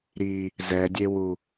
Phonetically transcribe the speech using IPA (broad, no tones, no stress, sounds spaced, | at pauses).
ɾ i | z ɛ dʲ e w u